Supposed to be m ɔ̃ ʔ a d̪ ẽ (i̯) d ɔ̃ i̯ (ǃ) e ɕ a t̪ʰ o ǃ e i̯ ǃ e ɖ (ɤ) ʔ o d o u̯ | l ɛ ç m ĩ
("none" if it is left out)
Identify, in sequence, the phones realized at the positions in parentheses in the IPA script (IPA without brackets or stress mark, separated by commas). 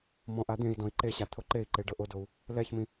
i̯, ǃ, ɤ